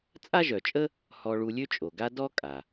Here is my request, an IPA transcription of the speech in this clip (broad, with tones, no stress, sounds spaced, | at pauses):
t͡sʼ a˥ ʒ œ˩ t͡ʃʼ ə˥ | h ɔ˧ ɭ u˧ lʲ ø˥ t͡ʃʼ o˩ ɡ a˥ d ɔ˥ kʼ a˩